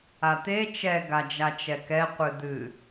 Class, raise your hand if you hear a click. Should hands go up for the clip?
no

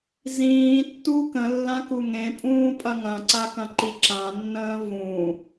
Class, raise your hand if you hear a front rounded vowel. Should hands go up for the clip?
no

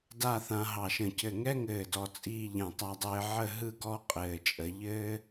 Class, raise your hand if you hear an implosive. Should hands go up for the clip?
no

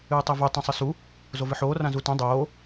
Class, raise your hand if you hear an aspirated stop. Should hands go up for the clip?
no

